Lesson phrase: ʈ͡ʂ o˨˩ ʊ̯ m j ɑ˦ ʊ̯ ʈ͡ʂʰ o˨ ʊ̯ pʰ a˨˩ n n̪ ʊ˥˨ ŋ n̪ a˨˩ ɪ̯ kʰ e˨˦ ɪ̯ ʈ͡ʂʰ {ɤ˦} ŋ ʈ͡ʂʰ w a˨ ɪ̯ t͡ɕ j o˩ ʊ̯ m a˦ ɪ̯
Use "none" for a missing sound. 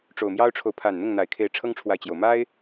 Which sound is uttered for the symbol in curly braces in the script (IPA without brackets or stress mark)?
ɤ˦